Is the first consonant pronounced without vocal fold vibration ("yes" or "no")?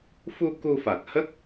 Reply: yes